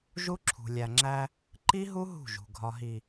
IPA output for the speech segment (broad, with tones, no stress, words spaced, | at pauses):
ʒu˦ǁʰṳ˨ lʲæ˨ŋ͡ǁæ˦ | ǃi˦ɦu˦ ɦṳ˦˨ʒṳ˨ ɡʱɒ˨ɦi˨